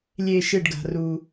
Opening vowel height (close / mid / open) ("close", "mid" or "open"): mid